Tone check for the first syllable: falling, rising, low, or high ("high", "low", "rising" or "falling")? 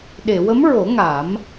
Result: low